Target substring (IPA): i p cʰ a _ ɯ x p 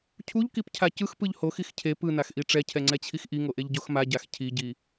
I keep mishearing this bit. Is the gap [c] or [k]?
c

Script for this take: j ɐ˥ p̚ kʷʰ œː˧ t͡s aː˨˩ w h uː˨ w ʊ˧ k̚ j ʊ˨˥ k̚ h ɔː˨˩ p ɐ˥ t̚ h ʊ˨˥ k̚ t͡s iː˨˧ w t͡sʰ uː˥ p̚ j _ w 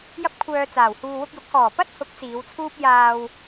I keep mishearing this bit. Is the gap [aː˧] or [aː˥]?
aː˧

